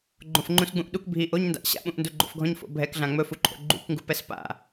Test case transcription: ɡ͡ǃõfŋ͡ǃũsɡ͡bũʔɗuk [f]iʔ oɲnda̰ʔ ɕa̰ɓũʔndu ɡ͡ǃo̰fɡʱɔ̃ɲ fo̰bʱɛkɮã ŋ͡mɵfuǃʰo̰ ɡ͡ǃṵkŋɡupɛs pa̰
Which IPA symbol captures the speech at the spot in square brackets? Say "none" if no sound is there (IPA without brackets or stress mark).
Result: bʱ